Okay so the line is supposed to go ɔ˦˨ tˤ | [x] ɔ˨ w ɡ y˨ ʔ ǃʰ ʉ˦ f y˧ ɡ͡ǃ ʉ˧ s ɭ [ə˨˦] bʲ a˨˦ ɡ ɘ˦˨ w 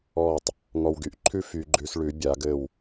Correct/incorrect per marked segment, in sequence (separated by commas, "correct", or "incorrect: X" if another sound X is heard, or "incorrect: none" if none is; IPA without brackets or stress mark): incorrect: ŋ, incorrect: ʉ˨˦